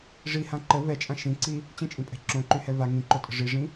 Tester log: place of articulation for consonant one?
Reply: retroflex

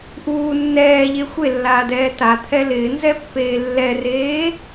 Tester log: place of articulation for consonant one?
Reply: glottal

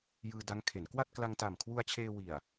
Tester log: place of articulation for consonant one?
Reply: palatal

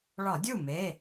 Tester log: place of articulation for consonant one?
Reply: retroflex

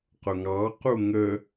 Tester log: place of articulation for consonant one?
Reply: uvular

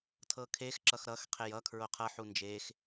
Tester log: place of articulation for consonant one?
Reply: alveolar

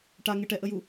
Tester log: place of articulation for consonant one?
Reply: retroflex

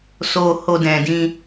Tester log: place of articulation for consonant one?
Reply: alveolar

